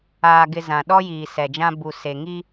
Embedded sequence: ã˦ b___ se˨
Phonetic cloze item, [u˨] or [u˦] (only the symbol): u˨